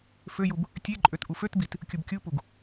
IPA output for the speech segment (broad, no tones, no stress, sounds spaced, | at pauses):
f ø j u b | tʲ e ǃʼ ø t ʔ u f ø t b i t | kʲ u b kʲ u p u ɡ